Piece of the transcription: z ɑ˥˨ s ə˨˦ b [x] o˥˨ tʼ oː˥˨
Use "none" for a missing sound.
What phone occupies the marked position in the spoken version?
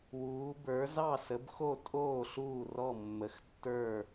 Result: x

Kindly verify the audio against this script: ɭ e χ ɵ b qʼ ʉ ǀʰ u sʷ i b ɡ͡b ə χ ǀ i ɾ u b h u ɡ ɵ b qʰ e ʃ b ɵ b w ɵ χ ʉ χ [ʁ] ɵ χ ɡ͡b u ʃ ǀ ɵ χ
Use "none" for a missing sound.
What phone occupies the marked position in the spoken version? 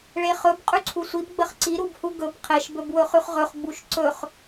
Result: ʁ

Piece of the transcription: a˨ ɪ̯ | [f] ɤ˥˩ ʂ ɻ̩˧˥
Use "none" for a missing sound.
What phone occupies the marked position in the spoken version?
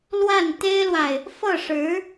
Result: f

